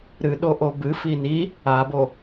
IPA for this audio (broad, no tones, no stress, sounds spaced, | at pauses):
ɾ ɨ ɗ o ʔ o b ɨ f i n i | a b o